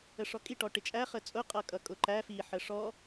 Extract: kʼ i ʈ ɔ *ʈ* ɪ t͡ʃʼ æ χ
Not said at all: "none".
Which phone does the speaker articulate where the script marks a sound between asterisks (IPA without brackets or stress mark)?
ʈ